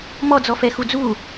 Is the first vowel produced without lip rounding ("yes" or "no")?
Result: no